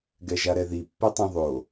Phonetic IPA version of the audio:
ɡ ɛ ʒ a ɾ ɛ ð i pː ɛ tˤ ẽ ðˤ o

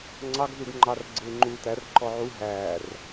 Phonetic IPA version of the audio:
ŋ͡ǀ ɑ ɡ z u ɡ ŋ͡ǃ ɑ r ɡ͡ǀ ɪː ŋ͡ǃ uː t æ r ǃ ɔ ʕ u ɦ æː r

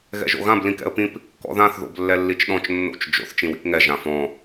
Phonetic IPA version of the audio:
ɣ ɛ̰ ʒ o̰ ɣ ã b l ĩ k ɛ̰ ə̯ p ĩ p | k ɔ̰ ð ã θ ð o̰ b lː ɛ lː i t͡ʃ ɗ ɔ̃ t͡ʃ nː o̰ t͡ʃ d͡ʒ o̰ θ t͡ʃ ĩ w ḭ p ŋ ɛ ʒ ã f ɔ̃

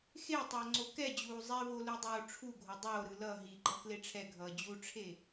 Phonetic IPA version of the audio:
x e tˤ ʌː ŋ͡ǀ o k ɛ d͡ʑ uː zˤ ɛ v o l u dˤ oː ʈ͡ʂʰ u ɡʱ o dˤ oː ɾ ɯ l ʌ ɦ i ɡ͡ǃ ʌ k l e ʈ͡ʂʰ ɛ ɡʱ ʌː d͡ʑ u ʈ͡ʂʰ e

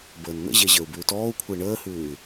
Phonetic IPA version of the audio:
b əː n n̪ ə̰ ʑ e ʑ əː u̯ b ʉː t ɔː u̯ kʷʰ ɪː ɳ əː h ʉː y̯

